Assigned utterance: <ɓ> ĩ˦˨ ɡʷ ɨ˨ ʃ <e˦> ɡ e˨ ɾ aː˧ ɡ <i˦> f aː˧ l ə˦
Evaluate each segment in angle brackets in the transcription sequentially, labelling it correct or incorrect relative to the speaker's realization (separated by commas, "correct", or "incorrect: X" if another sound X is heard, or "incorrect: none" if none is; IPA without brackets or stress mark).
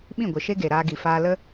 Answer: correct, correct, incorrect: i˨